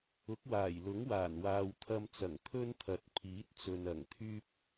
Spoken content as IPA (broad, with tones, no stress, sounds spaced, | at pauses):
ʊ˨˥ k̚ w aː˨˩ j l ʊ˨˥ ŋ w aː˨˩ n w aː˨ w t̪ʰ ɐ˧ m t͡s ɐ˨˩ ŋ t̪ʰ ɵ˥ n t̪ʰ ɐ˨ t̚ pʰ iː˨˥ t̚ t͡s ɵ˨ n ɐ˨˩ ŋ t̪ʰ yː˥ p̚